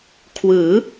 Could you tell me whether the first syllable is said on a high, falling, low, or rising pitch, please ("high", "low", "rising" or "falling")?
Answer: rising